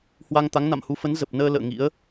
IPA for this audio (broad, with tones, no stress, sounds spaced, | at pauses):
h w a˧ ŋ t̪ a˨˦ ŋ n a̰˧˨ m h u˨˦ f ə˨˦ n z ə˨˩ p̚ n əː˧ l ə̰ː˧˨ ŋ ḭ˧˥ ə̯